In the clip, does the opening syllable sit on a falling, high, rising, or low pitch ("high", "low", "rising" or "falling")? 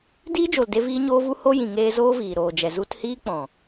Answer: high